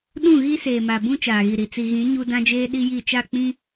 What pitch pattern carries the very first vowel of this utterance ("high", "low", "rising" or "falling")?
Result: falling